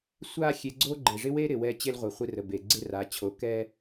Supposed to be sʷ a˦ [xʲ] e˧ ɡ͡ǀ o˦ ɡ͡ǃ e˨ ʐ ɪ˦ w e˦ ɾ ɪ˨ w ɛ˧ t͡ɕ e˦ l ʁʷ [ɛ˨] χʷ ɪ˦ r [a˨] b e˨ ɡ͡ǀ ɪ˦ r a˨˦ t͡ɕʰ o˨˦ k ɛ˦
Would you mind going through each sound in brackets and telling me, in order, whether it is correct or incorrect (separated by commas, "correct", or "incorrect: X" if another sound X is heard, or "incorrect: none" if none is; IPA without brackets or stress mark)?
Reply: correct, incorrect: e˨, incorrect: ə˨